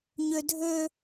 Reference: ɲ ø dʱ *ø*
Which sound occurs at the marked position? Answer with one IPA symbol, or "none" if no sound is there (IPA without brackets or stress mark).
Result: ø